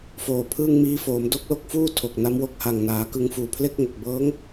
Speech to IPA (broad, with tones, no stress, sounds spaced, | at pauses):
f oː˨˩ pʰ ɯː˥˩ ŋ m iː˦˥ f oː˩˦ m d o˥˩ k̚ l o˦˥ k̚ f uː˥˩ tʰ o˨˩ k̚ n a˦˥ m w o˥˩ k̚ h a˨˩ ŋ n aː˩˦ k ɯ˧ ŋ f uː˨˩ pʰ l e˥˩ k̚ ŋ o˨˩ k̚ b ɤː˦˥ ŋ